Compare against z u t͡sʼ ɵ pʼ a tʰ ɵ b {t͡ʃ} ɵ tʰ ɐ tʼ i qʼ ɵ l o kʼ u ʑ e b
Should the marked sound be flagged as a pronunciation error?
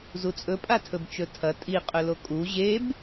no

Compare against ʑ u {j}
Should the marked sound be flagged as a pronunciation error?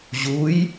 no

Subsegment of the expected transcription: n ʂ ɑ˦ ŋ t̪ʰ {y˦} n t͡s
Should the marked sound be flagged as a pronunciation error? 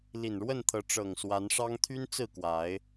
no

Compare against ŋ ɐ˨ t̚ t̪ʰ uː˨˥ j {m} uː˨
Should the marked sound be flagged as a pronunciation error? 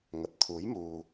no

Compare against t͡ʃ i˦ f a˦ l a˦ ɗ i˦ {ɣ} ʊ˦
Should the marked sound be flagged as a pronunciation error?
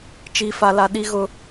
no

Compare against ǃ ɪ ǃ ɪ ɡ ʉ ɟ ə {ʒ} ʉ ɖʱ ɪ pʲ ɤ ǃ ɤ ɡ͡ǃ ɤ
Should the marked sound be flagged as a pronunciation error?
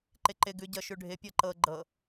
yes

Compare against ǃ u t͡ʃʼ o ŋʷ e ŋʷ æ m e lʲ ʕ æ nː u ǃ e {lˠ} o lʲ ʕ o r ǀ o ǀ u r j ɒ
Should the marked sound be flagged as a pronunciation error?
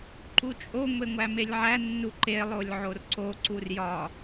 no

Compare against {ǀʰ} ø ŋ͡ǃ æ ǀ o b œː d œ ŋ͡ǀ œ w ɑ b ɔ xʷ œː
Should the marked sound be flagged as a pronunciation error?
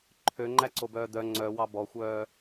yes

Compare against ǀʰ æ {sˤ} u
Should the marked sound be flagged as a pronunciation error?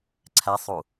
no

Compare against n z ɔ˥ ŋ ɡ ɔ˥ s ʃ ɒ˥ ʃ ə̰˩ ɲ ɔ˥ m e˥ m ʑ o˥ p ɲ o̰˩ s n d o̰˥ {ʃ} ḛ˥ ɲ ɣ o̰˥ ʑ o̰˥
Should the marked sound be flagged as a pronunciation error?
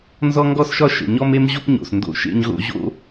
no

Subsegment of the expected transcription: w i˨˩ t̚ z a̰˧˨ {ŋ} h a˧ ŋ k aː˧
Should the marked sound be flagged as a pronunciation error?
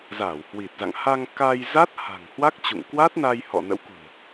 no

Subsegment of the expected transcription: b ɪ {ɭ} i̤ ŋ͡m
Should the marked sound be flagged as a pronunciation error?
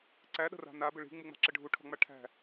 no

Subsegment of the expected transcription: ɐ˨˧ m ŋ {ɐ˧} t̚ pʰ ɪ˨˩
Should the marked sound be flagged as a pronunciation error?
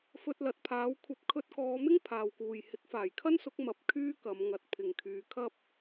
no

